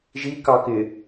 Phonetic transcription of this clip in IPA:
ʒ i k ɑ k ɪ

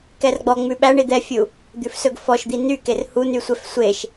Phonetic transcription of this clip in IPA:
k ɛ r ɡ͡b ɔ ŋ͡m ʉ ɓ æ ɳ i d̪ ɛ fʲ u | d̪ ʉ f s ɵ ɡ f ɔ ʃ d̪ i n y k e r h u n y sʷ ɛ f sʷ e ʃ

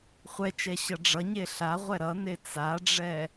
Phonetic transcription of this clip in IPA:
χʷ ɛ t͡ʃ ɛ ɕ ʌ ɖ͡ʐ ʌ ɲ e ɬ a ʁʷ ɛ ɾ ʌ n e t͡s a ɖ͡ʐ ɛ

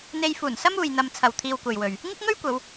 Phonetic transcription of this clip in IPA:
n̪ e˧ j f uː˨˩ n s ɐ˥ m uː˨ j n̪ ɐ˧ m t͡sʰ ɐ˨ w t̪ʰ iː˧ w kʷ ɐ˨ j w ɵ˨ ɥ | ŋ ɪ˥ k̚ ŋ ɵ˥ ɥ kʷ ɐ˨˧ w

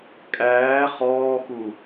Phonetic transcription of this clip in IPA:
kʼ æː χ ɔː x u

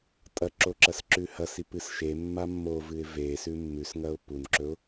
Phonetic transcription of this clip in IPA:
tʼ ɐ ǁ o ǁ ɐ s ǁ ʉ h ɐ s i p ɨ s ʃ e mː a mː o v ɨ ɪ̯ v e s ʉ mː ʉ s ŋ ɐ ʊ̯ p u n ǁ ɵ ʊ̯

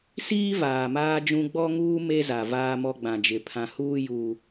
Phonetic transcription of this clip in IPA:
s iː˦ v aː˨ m aː˦ d͡ʒ ũ˦ ɡ͡b ɔ˦ ŋ uː˦ m e˦ z a˨ v aː˦ m ɔ˦ ɡ͡b ã˨ d͡ʒ ɪ˨ pʰ ã˨ h uː˦ j uː˦

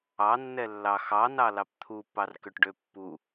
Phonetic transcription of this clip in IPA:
ɑ nː ɛ lː ɑ x ɑ n ɑ l ɑ p t̪ʰ u pː ɑ r k ø ʈ ɖ ø pː u

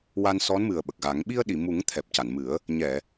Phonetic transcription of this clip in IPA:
w a˧ n s ɔ˧˥ n m ɨ˨˩ ə̯ ɓ ə˨˩ k̚ ɣ a˨˩˦ ŋ ɓ i˧ ə̯ ɗ i˨˩˨ m u˨˩˦ ŋ t̪ʰ ɛ˨˩ p̚ c a˨˩˨ n m ɨ˨˩˦ ə̯ | ɲ ɛ˨˩˨

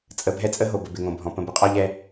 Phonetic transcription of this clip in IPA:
t͡sʼ ə˨ bʱ ɛ˦ t͡sʼ ə˦ ɦ o˨ b ə˨ b ɪ˨ ŋ õ˨ bʱ ɔ̃˨ p ə̃˨ b ɪ˨ qʼ ɔ˦ ʎ ɛ˦

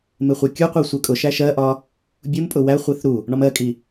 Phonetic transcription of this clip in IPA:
m ɪ χʷ ɛ kʲ u qʷ i sʷ ɜ kʼ ʊ ʃ æ ʃ ɜ ʔ ɒ | bʲ u m pʼ ʊ w æ χʷ i θ ɾ u | ɳ ɒ m ɜ kʼ i

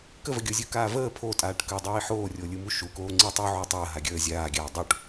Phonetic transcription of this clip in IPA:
k ə v ə ɡʲ o zʲ ɯ k aː v əː pʰ o tʼ aː ʈ k əː dˤ oː i̯ ħ oː rʲ o lʲ ɯ m u ʃ u k oː ŋ͡ǀ i tˤ u ʕ o tˤ əː ɦ a ɡʲ əː zʲ aː ɡʲ aː dˤ u ʈ

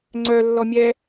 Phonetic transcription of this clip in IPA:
ŋ͡ǀ œ lː ɔ mʲ ɛ

